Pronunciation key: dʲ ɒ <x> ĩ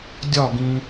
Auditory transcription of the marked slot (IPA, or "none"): ɡ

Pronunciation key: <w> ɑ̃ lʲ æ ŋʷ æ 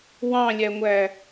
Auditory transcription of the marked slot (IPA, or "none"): w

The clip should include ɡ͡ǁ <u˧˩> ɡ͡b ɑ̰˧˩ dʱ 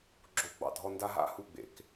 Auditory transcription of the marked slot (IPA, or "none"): o˧˩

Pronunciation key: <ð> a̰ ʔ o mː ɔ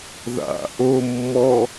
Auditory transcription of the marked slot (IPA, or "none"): ð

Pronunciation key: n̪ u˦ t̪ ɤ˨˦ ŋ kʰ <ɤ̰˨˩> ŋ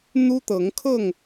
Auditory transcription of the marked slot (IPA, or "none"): ɤ˥˨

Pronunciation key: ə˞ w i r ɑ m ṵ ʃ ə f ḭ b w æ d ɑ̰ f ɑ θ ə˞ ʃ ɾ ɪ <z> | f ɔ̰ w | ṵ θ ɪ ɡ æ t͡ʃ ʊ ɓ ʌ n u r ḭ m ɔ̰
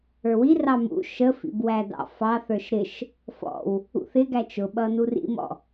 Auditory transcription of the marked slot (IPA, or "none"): ʃ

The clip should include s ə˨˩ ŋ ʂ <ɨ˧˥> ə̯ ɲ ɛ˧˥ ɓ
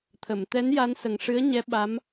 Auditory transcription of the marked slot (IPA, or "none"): ɨ˧˥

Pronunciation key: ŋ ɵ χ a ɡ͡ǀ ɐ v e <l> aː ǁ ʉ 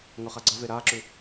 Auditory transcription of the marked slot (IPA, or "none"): ɾ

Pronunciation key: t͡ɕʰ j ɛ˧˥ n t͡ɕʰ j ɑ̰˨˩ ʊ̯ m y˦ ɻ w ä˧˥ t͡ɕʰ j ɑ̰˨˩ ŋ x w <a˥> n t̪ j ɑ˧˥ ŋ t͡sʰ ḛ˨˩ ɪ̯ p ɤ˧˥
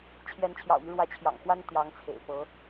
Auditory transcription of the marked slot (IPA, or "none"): a˥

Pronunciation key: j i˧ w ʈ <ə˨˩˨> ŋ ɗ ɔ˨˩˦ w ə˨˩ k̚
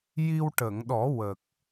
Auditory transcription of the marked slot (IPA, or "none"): ə˨˩˨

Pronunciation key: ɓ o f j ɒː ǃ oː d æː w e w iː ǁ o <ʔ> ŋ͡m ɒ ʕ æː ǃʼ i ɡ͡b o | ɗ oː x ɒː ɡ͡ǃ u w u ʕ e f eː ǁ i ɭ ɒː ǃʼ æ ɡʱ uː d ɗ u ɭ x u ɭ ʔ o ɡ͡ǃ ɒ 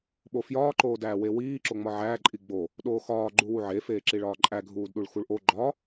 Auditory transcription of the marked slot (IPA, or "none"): none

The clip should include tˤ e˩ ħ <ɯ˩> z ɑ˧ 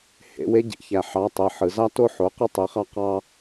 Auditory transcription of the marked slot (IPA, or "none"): ɯ˩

